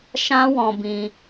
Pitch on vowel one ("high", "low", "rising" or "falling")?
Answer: high